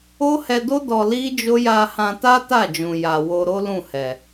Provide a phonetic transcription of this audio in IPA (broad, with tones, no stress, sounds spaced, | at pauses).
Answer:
o˦ h ɛ˧ d o˦ d ɔ˧ l i˦ d͡ʒ o˦ j a˧ h ã˧ t a˦ t a˦˨ d͡ʒ ũ˨ j a˨ w o˧ ɾ o˦ l ũ˦˨ h ɛ˨